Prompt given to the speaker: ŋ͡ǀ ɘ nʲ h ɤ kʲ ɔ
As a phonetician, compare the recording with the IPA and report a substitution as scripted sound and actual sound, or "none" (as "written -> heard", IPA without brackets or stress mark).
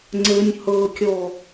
none